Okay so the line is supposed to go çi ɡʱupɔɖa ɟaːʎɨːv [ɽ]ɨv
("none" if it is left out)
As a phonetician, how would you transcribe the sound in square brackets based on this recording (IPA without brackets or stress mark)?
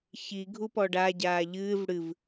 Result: ɽ